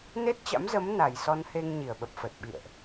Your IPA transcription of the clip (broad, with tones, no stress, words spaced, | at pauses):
ne˦˥t̚t͡ɕa̰˧˥mzə˨˦m na˨˩jsɔ˧nhe˧ŋ ɲi˧˩ə̯ɓə˨˩p̚fə˨˩t̚ɓḭ˧˨ə̯ʔ